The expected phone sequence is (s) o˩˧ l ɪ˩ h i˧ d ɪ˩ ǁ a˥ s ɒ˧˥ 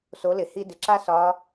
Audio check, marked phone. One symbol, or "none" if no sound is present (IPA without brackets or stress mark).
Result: s